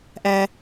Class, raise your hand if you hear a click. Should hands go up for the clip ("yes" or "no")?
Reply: no